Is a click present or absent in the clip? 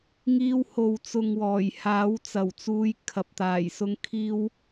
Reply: absent